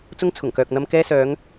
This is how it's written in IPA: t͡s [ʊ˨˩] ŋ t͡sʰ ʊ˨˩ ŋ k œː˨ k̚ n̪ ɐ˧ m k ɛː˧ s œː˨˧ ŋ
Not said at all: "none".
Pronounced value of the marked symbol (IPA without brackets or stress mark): ʊ˥